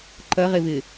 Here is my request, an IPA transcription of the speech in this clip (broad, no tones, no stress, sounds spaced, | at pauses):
ǃ ɐ ʁ e v ɪ